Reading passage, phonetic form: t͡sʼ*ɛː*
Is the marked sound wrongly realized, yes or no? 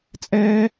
no